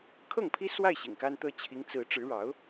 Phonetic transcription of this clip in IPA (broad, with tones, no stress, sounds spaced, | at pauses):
kʰ ɤ˥˩ ŋ pʰ i˥ s w a˥˩ ɪ̯ ɕ ḭ˨˩ ŋ k a˥ n t̪ ɤ˥ t͡ɕʰ i˧˥ ŋ t͡s ɹ̩˧˥ ʈ͡ʂ ɻ̩˧˥ ɻ ɑ˧˥ ʊ̯